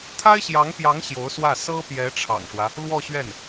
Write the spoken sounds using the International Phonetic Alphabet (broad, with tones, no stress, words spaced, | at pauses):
t̪ʰa˥ɪ̯ɕjɑ˧˥ŋpjɑ˧˥ŋ ɕjo˧˥ʊ̯swä˥˩ sɤ˥pjɛ˧˥ʈ͡ʂʰɑ̰˨˩ŋʂwä˦ | lwɔ˥˧ɕɥɛ˥˩n